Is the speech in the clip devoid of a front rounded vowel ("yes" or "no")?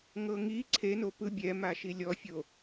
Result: yes